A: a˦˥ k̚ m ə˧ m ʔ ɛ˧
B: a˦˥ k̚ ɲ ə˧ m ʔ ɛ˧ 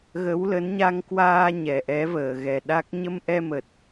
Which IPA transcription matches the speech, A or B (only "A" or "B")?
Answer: B